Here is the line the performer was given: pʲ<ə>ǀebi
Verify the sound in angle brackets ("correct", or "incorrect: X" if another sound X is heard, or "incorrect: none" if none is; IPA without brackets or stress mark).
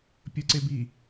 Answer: correct